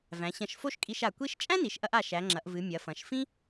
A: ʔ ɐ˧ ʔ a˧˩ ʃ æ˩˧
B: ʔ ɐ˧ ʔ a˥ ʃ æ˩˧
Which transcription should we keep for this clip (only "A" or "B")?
A